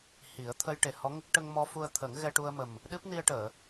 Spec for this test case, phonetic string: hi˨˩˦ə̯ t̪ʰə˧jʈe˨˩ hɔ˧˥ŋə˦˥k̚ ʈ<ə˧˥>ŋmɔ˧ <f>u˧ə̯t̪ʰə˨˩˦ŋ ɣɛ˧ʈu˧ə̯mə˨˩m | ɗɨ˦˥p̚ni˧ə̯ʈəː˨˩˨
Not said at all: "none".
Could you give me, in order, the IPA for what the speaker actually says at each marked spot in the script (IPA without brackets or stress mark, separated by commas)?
ə˧, f